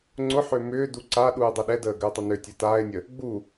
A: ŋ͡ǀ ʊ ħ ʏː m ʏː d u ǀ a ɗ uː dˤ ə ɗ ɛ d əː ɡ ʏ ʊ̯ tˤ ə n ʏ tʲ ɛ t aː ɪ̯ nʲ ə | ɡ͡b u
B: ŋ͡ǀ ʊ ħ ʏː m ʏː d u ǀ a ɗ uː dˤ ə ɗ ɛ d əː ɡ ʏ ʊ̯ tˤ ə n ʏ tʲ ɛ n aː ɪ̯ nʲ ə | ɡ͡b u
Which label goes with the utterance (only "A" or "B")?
A